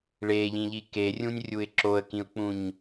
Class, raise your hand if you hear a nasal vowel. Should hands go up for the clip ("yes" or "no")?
yes